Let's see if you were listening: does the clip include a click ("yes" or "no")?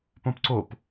yes